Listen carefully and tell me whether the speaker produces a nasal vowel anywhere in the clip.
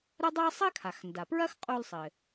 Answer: no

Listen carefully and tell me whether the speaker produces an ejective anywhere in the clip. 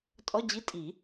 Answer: yes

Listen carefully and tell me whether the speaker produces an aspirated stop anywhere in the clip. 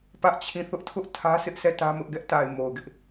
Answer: yes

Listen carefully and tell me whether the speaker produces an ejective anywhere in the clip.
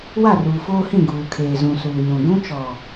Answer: no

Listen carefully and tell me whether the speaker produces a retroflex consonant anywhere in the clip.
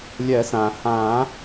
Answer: no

